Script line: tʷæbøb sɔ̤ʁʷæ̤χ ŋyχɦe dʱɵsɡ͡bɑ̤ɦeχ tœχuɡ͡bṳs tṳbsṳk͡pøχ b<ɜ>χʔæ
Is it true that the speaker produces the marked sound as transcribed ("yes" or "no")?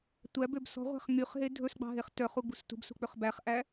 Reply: no